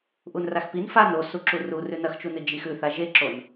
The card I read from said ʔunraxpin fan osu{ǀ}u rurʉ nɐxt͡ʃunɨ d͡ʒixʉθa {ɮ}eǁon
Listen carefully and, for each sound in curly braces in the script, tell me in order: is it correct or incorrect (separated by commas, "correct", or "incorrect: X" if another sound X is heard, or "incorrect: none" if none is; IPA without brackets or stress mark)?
incorrect: ǁ, incorrect: ʒ